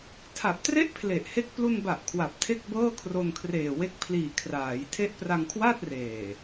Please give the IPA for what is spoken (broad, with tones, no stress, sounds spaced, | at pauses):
tʰ a˨˩ p̚ t r e˥˩ ʔ pʰ l e˨˩ ʔ h e˥˩ k̚ p l u˧ n b a˨˩ ʔ kʰ w a˨˩ p̚ tʰ e˥˩ k̚ b ɤː˥˩ kʰ r o˧ n kʰ r eː˨˩ w e˦˥ k̚ pʰ l iː˨˩ kʰ r aː˩˦ j tʰ e˦˥ ʔ p r a˧ ŋ kʰ w aː˥˩ t̚ r eː˨˩